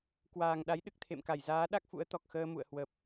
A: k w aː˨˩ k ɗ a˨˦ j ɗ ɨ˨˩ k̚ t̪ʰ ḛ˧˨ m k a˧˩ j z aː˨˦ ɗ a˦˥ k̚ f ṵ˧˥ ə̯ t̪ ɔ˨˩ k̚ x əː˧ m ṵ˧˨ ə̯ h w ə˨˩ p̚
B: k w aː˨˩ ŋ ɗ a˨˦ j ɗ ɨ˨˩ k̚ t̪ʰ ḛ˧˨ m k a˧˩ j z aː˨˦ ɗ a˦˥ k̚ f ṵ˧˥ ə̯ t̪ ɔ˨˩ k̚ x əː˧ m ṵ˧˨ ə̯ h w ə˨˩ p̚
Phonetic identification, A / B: B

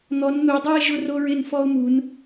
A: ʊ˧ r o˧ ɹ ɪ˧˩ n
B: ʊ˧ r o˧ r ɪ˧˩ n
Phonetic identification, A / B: A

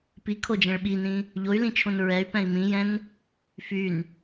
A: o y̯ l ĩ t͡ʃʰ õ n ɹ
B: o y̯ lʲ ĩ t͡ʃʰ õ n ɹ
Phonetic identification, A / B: A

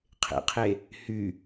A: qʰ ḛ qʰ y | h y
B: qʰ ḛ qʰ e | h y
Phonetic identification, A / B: B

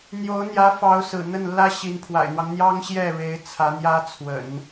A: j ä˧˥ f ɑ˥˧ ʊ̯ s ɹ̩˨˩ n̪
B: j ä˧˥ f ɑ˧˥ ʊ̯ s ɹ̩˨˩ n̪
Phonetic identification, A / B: B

